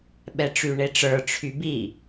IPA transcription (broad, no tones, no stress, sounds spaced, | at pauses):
ɓ ɛ ʈ͡ʂ y ɳ e ʈ͡ʂ ə˞ ʈ͡ʂʰ y b i